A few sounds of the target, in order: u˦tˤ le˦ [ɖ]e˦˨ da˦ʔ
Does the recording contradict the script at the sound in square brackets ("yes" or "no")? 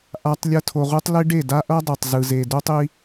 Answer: no